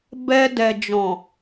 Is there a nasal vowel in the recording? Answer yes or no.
yes